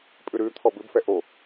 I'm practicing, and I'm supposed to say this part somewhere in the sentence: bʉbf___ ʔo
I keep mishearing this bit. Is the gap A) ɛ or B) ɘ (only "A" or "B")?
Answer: A